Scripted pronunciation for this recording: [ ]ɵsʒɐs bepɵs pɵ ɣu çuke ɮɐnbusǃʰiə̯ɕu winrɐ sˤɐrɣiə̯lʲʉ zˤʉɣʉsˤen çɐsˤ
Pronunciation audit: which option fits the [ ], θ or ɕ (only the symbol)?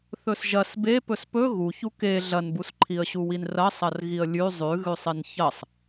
θ